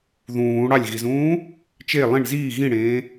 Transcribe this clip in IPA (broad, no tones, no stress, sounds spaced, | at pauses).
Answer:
ð ũː ɽ ɑ lʲ ɣ i z ũː | t͡ʃ e lˠ ĩ ɳ z iː ɣ ĩ ɽ ẽː